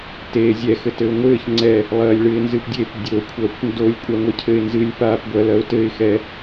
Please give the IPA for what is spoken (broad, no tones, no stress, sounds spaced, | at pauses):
t eː zʲ ɛ x ɘ t ɘ ʊ̯ ŋʷ ɘː ç ŋ͡ǀ ɛ | lˠ ɐː lʲ ɭ ɨ ɪ̯ n z ɨ p dʲ e p dʲ o kʷʰ ɐː kʷ n d o lʲ kʷʼ a ŋʷ e cʰ ɘ ɪ̯ n z ɨ lʲ p aː p ɡʷ ɐ l ɐ ʊ̯ t ɘ ɪ̯ x ɛ